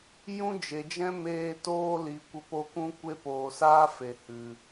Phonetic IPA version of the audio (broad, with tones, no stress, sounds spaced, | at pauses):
j ũ˦ d͡ʒ e˨ d͡ʒ ɛ̃˦ m eː˦ t oː˦ l i˨ kʷ ə˧ p o˧ k ũ˦ kʷ e˦ p oː˨ s aː˦ f e˨ h ɨ˨